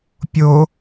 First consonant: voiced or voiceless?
voiceless